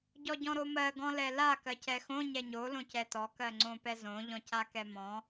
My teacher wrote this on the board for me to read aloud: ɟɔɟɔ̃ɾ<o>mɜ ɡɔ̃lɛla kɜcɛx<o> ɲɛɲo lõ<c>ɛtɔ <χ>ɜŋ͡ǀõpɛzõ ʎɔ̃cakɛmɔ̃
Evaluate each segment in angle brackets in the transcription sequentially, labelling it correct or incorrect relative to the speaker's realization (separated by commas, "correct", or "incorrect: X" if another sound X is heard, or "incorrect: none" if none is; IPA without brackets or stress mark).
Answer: correct, incorrect: õ, correct, incorrect: k